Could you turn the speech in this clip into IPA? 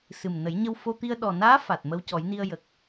s ɨ˨˩ m n ə˨˩˦ j ɲ ə˧ w f o˧ t̪ i˧ ə̯ ɗ ɔ˨˩ n aː˧˥ f a˨˩ t̚ m ə˧ w c ɔ˨˩˦ j n i˧ ə̯ j ə˨˩ k̚

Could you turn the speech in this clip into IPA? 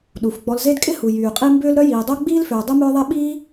ɗ u˩ f ɡ͡b ɔ˨ l z e˦ d kʼ ɪ˥ h u˩ j yː˩ qʼ i˦ m b ʏː˥ l ɾ œ˥ j iː˨ dˤ o˥ ɡ͡b iː˥ l f ʏː˨ dˤ u˥ m ʏː˥ ðˤ e˥ ɓ iː˦

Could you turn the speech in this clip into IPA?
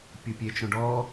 pʲ u pʲ e t͡ʃ õ ɖ ɔ

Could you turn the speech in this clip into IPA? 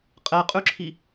qʼ ɛ qʼ ʉ ǁʰ i

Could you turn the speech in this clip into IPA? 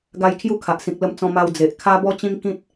ɡ a˧ j kʰ j u˦ kʰ a˨ ʔ s ĩ˨ k̚ l ə˧ m t͡s ɔ̃˧ m a˧ w d͡z e˨ ʔ kʰ a˦ b ɔ˦ t͡ɕ ĩ˦ ŋ k ĩ˦ t̚

